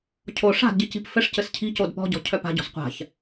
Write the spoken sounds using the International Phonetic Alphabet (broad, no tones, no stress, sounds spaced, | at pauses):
cʰ o ʂ a̤ d ɟ i c i̤ p f ɘ ʂ c ɘ s cʰ i̤ c o d p ɔ̤ ɟ ɔ̤ cʰ œ p a̤ ɟ ɔ̤ s qʷ a̤ ç